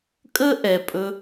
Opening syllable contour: high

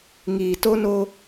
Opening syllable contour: low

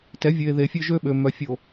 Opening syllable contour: rising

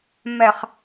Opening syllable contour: low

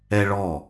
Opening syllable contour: high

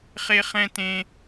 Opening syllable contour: high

